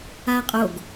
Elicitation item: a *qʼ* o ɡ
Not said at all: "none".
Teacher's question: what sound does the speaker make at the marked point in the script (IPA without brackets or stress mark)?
qʼ